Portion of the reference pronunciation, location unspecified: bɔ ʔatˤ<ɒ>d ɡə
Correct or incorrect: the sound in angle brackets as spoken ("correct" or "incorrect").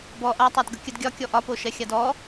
incorrect